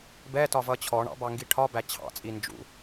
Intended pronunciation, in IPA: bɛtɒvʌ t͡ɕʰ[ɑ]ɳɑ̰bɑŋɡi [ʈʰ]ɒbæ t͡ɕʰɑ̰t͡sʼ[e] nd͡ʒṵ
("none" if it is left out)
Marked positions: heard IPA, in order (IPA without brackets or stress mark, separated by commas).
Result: ɔ, ʈʰ, i